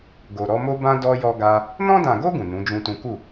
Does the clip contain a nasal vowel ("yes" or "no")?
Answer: yes